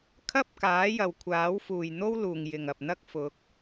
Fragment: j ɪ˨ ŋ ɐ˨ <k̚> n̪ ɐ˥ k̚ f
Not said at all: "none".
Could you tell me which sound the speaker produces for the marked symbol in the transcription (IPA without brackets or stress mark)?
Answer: p̚